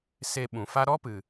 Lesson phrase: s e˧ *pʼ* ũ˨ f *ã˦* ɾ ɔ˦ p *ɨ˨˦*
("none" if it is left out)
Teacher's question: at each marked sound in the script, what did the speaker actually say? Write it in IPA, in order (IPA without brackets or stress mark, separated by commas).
ɓ, a˦, ɨ˨